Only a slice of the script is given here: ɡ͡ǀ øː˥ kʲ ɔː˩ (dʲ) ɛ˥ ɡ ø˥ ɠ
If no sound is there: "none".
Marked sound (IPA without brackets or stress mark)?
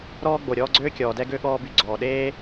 d